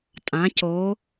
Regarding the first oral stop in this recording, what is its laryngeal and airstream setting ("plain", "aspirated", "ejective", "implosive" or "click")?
ejective